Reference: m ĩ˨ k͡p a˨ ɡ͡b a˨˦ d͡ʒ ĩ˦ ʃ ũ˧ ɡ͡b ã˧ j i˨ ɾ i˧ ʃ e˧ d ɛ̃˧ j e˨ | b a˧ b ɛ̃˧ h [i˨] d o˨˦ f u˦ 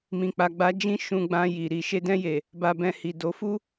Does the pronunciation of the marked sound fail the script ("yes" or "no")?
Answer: no